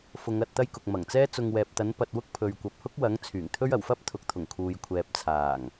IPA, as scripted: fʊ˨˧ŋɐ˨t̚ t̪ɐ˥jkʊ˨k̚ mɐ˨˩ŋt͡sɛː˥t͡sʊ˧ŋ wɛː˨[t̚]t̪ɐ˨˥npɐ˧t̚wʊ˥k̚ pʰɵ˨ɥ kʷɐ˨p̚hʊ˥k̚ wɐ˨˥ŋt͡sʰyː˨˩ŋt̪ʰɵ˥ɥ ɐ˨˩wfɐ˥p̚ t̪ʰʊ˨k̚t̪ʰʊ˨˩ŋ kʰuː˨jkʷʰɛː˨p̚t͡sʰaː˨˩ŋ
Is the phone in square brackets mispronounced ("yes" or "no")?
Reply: yes